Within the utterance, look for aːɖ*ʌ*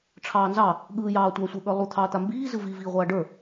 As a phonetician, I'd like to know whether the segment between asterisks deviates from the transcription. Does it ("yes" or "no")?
yes